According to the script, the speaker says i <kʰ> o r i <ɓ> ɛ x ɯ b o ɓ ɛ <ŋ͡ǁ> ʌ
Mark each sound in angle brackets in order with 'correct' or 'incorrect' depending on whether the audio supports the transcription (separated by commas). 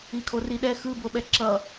correct, incorrect, incorrect